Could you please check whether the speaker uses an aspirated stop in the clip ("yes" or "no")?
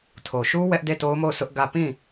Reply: yes